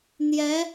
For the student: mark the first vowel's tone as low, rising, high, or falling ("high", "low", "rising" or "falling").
rising